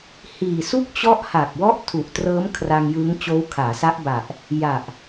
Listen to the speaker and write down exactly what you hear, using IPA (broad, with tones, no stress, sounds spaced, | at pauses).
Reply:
h iː˨˩ s u˥˩ k̚ t͡ɕ ɔ˦˥ ʔ h a˨˩ k̚ w ɔ˦˥ ʔ tʰ u˨˩ ʔ t r ɤː˦˥ m kʰ r a˧ ŋ j ɯ˦˥ ŋ t͡ɕ oː˦˥ w kʰ aː˩˦ s a˦˥ ʔ b a˨˩ ʔ | j a˨˩ ʔ